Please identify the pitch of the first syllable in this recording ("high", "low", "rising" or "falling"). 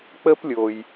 high